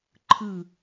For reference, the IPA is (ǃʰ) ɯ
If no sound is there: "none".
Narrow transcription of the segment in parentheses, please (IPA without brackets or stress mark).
ǃʰ